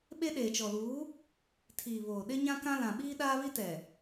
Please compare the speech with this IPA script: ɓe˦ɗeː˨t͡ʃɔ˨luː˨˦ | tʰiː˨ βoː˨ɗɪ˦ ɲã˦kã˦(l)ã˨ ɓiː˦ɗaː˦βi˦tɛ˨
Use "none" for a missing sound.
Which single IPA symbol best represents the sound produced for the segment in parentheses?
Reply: l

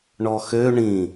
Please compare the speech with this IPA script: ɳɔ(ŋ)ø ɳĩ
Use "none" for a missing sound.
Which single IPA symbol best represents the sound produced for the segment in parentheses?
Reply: x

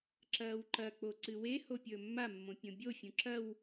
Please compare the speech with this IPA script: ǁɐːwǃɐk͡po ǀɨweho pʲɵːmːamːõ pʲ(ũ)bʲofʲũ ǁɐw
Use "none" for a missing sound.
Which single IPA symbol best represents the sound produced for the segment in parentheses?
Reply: õ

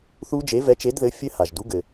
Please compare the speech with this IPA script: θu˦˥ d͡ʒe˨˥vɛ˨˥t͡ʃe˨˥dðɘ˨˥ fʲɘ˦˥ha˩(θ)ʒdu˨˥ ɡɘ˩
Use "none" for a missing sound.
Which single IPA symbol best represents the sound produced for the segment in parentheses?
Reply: none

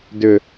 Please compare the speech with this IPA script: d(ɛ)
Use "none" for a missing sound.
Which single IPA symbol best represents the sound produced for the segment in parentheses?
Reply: ʏ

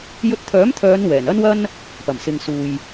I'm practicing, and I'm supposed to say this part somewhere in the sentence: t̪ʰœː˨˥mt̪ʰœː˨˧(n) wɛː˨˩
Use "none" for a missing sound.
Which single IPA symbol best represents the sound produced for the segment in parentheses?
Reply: n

